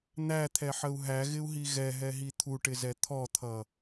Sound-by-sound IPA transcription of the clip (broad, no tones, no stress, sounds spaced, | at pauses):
n̪ æ t̪ʰ ɛ ħ ə u̯ ɦ æ ɣ ɪ u̯ ɦ i ɣ ɛ ɦ ɛ ɦ i t̪ʰ u ʈ ɪ z ɛ t̪ʰ ɔ t̪ʰ ʌ